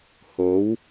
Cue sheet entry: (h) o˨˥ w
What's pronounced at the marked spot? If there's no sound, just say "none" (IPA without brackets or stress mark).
h